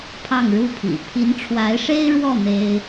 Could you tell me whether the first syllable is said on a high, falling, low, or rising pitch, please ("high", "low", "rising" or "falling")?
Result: falling